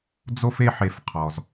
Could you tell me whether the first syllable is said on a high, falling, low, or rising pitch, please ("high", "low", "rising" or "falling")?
high